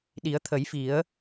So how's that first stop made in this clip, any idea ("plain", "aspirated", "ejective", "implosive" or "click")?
implosive